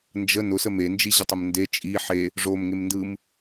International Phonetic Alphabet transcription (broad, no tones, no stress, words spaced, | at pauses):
nd͡ʒə nʊsəm end͡ʒiʑətˤəm nde t͡ʃʼi ħe | ʐomŋemndɯm